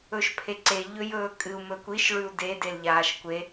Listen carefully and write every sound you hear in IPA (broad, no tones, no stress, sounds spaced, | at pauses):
ɵ ʃ pʰ e ǀ e ʎ ɵ j ɵː kʼ ɨ u̯ m ɵ kʷ i ʃ ɭ ʉ u̯ d e d e l ʎ aː ʃ kʷ e